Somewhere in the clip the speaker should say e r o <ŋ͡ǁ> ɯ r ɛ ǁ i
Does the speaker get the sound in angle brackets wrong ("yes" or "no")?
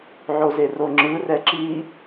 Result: no